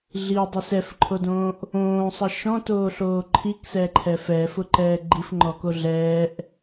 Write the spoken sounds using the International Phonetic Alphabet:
ɮ i dˤ ə s ɛ f ǃʰ o d õː ʔ | õː sˤ ə ʃ ɔ̃ t oː ɬ oː ǃʰ i k s ɛ ǃʰ ɛ f ɛː f ʊ ǃ ɛː ɡ͡ǃ i f ŋ͡ǃ ɔ k o ɮ ɛː ʔ

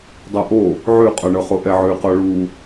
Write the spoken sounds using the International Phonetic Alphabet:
dˤ ɤ ʔ o | ʕ ʉ qʼ ɔ ɳ ɤ χ o ʔ ɛ ʕ ʉ q ɔ ɭ u

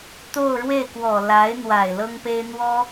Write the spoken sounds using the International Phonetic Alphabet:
t̪ o˥˧ ʊ̯ ɻ w e˥˩ ɪ̯ k w ɔ˨˩ l a˧˥ ɪ̯ n̪ w a˨˩ ɪ̯ l ɤ˥ ŋ p e˥ ɪ̯ n̪ w ɔ˥

